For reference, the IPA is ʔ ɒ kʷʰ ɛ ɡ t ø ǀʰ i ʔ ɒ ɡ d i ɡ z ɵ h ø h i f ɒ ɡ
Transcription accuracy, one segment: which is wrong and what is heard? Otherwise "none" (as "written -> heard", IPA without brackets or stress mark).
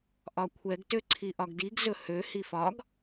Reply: none